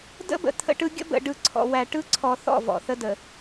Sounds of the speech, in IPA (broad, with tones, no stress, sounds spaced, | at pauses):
d ə̰˦ b ə̰˨ t̪ʰ ə̰˦ ʈ ɯ˦ ɡʲ ə̰˦ b ə̰˨ ɖ ɯ˨ ǀʰ ɔ̰˨ w æ˨ ʈ ɯ˦ ǀʰ ɔ˨ θ ɔ̰˦˨ v ɔ̰˨ θ ə˦ d ə˨